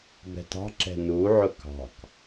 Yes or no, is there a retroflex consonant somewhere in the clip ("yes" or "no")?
no